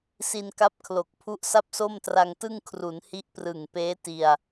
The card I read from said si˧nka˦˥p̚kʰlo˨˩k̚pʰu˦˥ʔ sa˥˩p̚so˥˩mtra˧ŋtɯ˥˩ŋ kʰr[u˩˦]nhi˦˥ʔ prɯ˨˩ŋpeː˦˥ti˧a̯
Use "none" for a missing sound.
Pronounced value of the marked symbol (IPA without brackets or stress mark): u˩˦